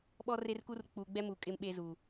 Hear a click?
no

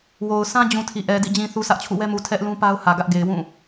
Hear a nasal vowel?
yes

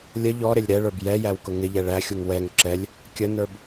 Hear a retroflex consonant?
yes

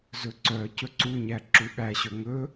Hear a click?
yes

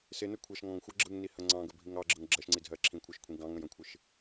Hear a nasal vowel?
yes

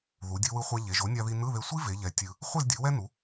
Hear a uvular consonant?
yes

